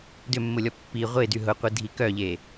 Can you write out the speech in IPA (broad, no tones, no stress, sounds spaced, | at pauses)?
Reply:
d ʏ mː ʊ lʲ ɔ pː i ʁʷ e d y ɦ ʊ qʷ i dʱ i k œ ʎ e